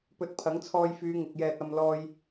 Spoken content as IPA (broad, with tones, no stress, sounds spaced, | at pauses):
p ɵ˧ t̚ pʰ ɐ˨˥ ŋ t͡sʰ ɔː˧ j f yː˨˧ ŋ ɪ˨ k̚ j ɛː˨ t̚ ɐ˨ m l ɔː˧ j